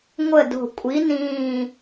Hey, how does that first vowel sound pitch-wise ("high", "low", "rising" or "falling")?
falling